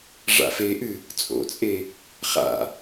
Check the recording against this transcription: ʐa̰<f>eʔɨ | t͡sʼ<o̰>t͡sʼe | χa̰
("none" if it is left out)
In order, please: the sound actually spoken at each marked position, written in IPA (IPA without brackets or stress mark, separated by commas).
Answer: f, o̰